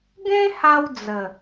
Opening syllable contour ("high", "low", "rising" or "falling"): high